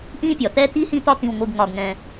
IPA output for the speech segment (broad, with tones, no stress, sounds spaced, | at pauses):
ʔ ĩ˥ pʲ ɒ˩ t̪ ɛ˥ t̪ i˥ h ĩ˦ t̪ ɒ˦ t̪ ĩ˨ w ŋʷ ɨ˨ ɡ ŋ ɒ˨ ɡ ŋ ɛ̃˨